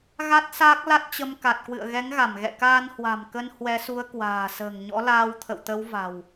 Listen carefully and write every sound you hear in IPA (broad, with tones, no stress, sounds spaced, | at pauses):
ɣ a˦˥ t̚ s aː˦˥ k̚ l a˦˥ t̚ t͡ɕ ə˧ m k a˨˩ t̚ k w ɨ̰˧˨ ə̯ ɣ ɛ˨˦ ŋ ɣ a˧˩ m ɣ ɛ̰˧˨ k aː˧ n h w a̤˨˩ m k ə˧ n h w ɛ˨˦ s u˨˦ ə̯ k w a̤ː˨˩ s ə̤ː˨˩ ŋ ɲ ɔ̰˧˥ l aː˧ w t̪ʰ ə̰˧˨ w t̪ ə˨˦ w v a̤˨˩ w